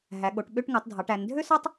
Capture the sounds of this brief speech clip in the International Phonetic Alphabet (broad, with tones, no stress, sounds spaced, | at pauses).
ɦ æ˩˧ ɠ o˩˧ ʈ ɓ ø˧˥˧ ʈ ŋ ɯ˩˧ tˤ dʱ ɑ˩˧ ʈ æ˩˧ n dʱ ø˥ s ɑ˥ tˤ